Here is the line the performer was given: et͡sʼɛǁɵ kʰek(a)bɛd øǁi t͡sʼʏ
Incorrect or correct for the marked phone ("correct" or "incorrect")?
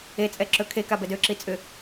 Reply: correct